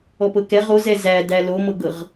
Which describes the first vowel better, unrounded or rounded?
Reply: rounded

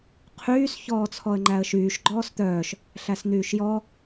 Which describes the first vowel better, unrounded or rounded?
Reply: rounded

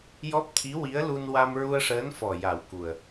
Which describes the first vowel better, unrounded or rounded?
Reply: rounded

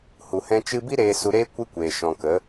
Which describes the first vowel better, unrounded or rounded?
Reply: rounded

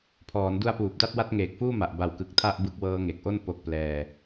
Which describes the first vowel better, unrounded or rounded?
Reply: rounded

